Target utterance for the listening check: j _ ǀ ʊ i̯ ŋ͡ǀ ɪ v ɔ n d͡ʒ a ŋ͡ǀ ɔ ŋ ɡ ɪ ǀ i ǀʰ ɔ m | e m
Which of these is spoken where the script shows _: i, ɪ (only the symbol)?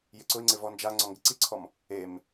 ɪ